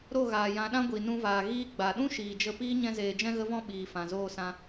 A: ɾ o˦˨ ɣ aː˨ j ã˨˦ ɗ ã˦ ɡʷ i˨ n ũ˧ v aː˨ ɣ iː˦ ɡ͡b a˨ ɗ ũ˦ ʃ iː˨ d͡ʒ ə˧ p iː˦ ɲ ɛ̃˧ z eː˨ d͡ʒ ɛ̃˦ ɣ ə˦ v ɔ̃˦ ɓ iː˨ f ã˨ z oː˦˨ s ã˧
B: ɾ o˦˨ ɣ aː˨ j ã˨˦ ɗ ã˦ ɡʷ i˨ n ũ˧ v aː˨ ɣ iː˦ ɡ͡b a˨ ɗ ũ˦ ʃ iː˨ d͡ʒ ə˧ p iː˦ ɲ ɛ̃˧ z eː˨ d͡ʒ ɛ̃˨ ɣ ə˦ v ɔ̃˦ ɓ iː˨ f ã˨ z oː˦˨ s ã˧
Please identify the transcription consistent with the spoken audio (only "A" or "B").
A